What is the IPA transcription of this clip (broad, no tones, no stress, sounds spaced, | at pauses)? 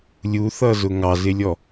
lʲ u θ ʌ z ʊ ŋ ɑ z ɪ lʲ ɔ